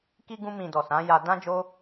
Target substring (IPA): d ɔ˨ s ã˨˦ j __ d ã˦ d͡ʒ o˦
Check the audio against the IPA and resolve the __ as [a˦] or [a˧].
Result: a˧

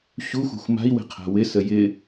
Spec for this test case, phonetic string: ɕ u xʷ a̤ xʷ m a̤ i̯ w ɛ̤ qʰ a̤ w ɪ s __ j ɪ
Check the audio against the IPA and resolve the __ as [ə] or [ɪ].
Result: ə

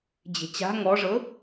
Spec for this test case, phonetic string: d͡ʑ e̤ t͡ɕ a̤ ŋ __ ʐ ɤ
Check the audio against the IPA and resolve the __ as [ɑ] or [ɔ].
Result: ɔ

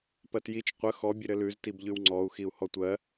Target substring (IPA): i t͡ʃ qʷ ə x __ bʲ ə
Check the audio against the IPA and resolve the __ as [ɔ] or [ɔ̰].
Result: ɔ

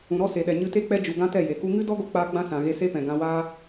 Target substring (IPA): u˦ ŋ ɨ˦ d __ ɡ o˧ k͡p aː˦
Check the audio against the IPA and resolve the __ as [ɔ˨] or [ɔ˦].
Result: ɔ˦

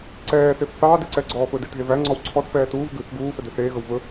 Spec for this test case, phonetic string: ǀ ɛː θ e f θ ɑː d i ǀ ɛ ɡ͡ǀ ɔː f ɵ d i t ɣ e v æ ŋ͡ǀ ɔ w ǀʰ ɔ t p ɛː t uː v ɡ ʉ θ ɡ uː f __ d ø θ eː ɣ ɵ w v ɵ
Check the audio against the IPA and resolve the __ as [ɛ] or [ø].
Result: ɛ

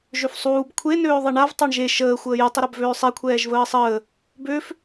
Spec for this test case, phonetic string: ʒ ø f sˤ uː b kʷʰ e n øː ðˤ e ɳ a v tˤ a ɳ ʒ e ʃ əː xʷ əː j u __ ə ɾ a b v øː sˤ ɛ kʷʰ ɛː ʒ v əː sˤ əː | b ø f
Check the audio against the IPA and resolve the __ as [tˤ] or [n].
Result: tˤ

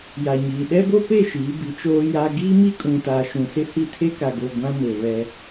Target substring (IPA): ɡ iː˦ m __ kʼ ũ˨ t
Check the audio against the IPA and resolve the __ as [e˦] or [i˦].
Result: i˦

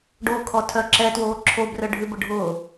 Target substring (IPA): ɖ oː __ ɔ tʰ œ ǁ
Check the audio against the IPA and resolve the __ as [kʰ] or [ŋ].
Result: kʰ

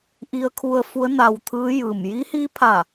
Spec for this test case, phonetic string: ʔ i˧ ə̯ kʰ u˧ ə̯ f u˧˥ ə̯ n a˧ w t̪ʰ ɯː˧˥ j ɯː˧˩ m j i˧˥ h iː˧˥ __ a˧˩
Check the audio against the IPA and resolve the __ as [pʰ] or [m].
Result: pʰ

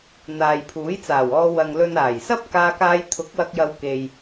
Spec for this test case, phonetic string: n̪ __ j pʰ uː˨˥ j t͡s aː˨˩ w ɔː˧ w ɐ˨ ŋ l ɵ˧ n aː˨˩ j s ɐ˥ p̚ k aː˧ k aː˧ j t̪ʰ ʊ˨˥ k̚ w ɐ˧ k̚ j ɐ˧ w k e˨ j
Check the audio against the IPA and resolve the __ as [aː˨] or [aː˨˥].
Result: aː˨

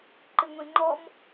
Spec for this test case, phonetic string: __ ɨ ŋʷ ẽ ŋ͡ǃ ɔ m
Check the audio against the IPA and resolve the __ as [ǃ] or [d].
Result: ǃ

